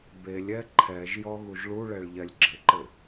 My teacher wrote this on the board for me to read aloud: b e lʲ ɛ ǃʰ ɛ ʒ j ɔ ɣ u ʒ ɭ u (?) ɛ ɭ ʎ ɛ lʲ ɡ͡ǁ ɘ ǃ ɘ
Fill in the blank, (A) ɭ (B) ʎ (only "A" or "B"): A